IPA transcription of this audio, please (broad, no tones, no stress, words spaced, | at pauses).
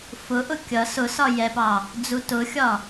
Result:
fʊʔʊ kʲʌ sʊsɒ jɛpɑ | d͡zutʊxʲɒ